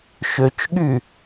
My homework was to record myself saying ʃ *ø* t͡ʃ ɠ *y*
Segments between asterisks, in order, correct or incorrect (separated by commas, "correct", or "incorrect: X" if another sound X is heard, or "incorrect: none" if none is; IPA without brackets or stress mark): correct, correct